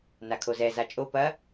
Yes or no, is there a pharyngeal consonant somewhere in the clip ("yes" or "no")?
no